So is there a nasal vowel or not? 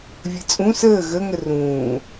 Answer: yes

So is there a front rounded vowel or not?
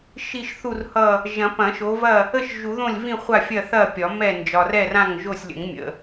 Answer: no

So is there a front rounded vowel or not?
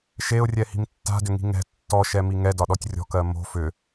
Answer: yes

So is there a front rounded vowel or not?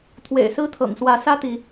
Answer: no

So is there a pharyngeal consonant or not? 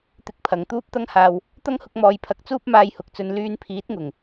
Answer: no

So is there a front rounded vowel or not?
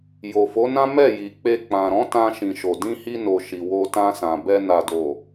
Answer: no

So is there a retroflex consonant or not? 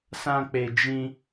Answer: no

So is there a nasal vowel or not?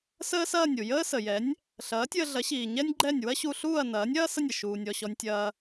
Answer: no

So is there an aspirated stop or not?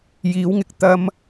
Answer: no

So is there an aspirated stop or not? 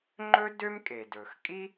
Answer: no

